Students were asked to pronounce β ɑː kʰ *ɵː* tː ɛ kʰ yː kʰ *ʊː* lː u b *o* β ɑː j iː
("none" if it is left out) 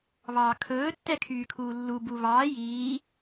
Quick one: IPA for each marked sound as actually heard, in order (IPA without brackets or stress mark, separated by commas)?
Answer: ɵː, uː, u